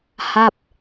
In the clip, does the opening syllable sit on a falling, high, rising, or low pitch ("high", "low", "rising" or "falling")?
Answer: falling